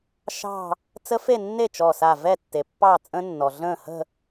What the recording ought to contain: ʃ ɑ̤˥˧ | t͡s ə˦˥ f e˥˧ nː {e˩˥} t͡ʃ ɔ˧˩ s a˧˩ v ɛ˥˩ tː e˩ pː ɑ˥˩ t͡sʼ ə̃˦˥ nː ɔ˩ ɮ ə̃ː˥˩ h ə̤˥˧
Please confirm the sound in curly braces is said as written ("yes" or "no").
no